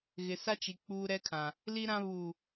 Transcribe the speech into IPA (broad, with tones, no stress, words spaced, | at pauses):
ɣɪ˨sa˦t͡ʃi˨ k͡puː˦ɾɛ˦kʰã˨ | li˦ɾã˦ βuː˨